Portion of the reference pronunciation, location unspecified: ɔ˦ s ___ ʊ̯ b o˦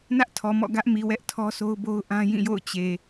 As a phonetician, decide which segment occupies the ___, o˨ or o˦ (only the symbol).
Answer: o˦